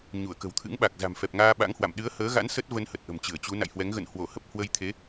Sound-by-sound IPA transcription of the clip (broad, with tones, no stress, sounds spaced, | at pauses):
ɲ u˧˩ ə̯ k ə̤˨˩ w t̪ʰ ɨ̰˧˥ ŋ ɓ a˨˩ k̚ z a̤˨˩ m f ɛ˨˩ p̚ ŋ aː˧ ɓ a̰˧˥ ŋ h w a̰˧˨ m ɗ ɨ˨˦ ə̯ h əː˨˦ ɣ a̰˧˥ n s ə˦˥ t̚ v ə˧ n h ə˨˩ t̚ ʔ ə̤˨˩ m t͡ɕ ɨ˧˩ ə̯ t͡ɕ u˨˦ n a̰˧˨ j h w ɛ˨˦ ŋ ɣ ə̰˧˨ n h w o˧˩ h ə˦˥ p̚ h w ə˧ j t̪ʰ e˨˦